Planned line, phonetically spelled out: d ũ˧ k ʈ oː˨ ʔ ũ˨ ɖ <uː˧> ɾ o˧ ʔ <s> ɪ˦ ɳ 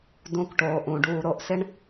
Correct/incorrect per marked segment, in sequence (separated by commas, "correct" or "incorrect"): correct, correct